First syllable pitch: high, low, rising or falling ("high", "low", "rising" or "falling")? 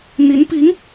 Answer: rising